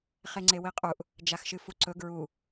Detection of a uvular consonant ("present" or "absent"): present